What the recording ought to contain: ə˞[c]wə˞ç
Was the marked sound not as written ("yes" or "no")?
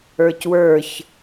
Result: no